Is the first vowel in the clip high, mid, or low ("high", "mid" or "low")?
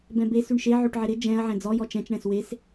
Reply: mid